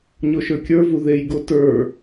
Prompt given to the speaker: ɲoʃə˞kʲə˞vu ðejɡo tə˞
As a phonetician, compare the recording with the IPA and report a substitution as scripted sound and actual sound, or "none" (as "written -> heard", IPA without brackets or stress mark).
none